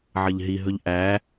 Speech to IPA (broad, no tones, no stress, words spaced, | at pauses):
ʕʌʎɦiɦɵʎ ʔæ